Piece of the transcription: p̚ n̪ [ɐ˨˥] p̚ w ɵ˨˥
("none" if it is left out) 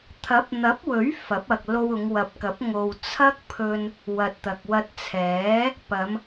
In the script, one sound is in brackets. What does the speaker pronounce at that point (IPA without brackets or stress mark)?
ɐ˨˥